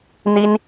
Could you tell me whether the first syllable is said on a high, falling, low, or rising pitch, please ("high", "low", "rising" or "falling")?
high